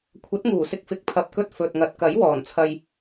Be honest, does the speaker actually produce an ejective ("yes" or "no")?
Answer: no